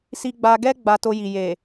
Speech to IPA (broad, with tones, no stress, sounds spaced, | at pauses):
s i˧ ɡ͡b a˧ ɡ ɛ˦ ɡ͡b a˧ t o˧ j i˨ j e˨